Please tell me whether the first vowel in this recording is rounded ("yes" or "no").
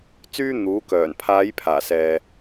yes